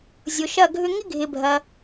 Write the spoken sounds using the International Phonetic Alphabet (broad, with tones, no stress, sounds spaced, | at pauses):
zʲ ʊ˨ ʃ ɐ˥˨ ɡʱ ʏ˥ ŋ ɪ˥ ɡʱ ɪ˨ bʱ ɐ˨